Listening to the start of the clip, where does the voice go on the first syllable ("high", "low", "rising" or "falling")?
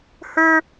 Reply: high